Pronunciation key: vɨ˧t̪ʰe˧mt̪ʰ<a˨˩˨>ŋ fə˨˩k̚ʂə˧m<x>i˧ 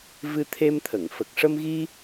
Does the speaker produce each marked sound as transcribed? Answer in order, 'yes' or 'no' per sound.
no, no

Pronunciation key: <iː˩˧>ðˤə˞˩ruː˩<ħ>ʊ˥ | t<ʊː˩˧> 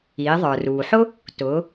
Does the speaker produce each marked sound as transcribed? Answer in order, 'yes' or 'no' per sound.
yes, yes, yes

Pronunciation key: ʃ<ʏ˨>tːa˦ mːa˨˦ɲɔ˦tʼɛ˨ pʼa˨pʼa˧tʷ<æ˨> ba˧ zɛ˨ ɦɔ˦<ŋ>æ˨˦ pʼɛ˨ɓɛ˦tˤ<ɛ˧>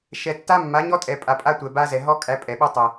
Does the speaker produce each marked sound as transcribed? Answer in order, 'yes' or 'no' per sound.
no, no, no, no

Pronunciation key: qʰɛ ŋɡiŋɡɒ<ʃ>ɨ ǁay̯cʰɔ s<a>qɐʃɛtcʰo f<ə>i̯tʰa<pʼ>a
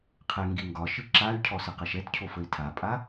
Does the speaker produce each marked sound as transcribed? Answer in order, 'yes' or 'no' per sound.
yes, no, yes, yes

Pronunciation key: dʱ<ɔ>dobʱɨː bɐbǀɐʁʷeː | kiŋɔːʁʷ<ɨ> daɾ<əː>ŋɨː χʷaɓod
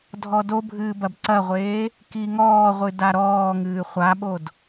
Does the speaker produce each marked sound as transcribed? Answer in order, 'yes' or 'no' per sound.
yes, yes, no

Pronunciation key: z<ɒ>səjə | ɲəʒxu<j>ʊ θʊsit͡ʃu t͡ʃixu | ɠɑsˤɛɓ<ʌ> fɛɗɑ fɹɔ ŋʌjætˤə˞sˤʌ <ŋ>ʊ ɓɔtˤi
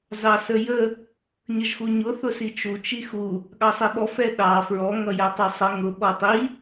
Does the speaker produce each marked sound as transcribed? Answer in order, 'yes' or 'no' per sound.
no, no, no, yes

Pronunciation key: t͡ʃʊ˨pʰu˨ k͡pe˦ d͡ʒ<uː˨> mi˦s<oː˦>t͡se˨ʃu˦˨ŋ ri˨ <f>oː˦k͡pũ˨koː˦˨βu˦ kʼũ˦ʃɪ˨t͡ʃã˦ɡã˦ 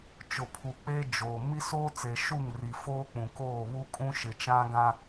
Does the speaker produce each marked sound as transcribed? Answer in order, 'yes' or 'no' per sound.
no, yes, yes

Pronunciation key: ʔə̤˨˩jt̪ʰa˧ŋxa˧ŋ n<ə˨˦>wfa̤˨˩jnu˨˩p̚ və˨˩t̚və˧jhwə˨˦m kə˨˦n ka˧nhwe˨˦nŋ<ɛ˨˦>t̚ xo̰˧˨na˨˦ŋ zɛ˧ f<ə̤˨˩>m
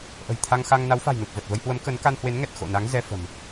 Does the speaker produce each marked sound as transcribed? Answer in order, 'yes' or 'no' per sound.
no, no, yes

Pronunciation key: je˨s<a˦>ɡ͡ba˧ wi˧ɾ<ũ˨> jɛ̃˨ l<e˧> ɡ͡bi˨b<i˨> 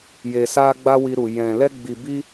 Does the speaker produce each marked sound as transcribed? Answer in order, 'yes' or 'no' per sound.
no, no, no, no

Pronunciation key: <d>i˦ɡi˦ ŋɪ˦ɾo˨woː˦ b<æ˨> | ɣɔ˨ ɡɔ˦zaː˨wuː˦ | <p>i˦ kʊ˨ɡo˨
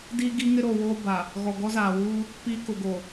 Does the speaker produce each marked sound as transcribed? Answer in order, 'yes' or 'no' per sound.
yes, no, yes

